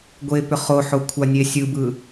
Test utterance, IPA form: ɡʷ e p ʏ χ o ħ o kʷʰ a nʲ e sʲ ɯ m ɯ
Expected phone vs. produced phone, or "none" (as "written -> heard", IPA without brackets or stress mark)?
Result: m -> b